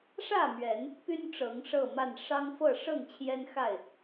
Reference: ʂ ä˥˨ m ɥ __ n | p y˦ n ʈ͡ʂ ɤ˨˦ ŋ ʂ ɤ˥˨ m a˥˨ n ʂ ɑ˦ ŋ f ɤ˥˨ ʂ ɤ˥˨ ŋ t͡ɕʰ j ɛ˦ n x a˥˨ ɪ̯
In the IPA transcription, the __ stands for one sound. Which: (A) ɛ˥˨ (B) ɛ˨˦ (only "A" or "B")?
B